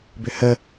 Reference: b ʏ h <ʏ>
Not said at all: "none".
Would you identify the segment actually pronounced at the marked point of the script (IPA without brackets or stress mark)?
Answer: ə